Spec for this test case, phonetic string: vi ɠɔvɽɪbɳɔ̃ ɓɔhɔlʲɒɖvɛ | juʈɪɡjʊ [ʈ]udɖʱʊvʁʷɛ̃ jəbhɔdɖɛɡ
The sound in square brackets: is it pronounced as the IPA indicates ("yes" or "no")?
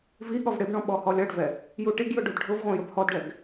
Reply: no